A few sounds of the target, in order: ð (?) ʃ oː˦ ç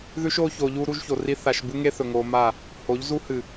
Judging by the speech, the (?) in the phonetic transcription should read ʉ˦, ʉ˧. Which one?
ʉ˦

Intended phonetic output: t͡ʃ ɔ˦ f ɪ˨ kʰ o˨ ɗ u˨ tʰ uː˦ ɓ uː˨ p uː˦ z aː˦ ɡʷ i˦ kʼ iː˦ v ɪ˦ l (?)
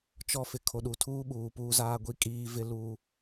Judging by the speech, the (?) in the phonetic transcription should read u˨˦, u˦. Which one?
u˦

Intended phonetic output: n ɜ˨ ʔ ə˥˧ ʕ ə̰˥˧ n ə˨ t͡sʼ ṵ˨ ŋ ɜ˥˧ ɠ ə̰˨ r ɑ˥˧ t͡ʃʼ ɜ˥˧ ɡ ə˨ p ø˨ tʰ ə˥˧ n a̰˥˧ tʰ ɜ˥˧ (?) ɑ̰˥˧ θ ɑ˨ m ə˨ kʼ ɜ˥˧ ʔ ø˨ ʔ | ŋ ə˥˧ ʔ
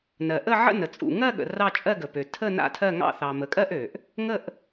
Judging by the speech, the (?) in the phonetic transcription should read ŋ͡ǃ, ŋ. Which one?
ŋ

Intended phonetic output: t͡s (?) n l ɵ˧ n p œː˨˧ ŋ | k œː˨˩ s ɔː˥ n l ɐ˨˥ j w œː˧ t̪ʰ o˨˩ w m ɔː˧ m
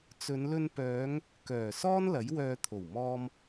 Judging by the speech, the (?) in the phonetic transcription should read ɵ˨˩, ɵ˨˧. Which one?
ɵ˨˧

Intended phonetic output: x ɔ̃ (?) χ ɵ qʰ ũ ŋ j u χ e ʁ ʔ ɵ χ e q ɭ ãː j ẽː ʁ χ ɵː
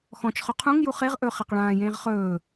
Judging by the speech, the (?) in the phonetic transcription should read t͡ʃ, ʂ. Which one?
t͡ʃ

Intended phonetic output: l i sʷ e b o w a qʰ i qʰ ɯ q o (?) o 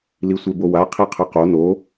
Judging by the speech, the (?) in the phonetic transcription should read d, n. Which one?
n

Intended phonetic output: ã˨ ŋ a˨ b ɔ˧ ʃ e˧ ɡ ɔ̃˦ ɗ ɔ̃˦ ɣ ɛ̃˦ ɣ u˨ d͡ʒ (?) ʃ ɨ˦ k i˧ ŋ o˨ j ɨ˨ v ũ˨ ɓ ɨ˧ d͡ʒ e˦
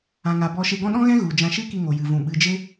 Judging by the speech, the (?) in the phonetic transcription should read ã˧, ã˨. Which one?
ã˧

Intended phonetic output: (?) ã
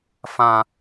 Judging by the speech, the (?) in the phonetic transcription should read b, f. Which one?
f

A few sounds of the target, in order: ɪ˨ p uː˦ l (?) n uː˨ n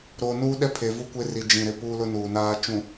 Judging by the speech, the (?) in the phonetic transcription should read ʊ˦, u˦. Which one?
ʊ˦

